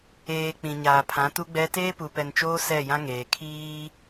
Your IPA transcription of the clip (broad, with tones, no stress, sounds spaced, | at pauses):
eː˨ k͡p ĩ˨ ɲ aː˨ pʰ ã˨˦ t u˦ ɡ͡b ɛ˦ t eː˦ p u˨ p ɛ˨ n t͡ʃ oː˦ s ɛ˦˨ j ã˦ ŋ eː˨ kʰ iː˦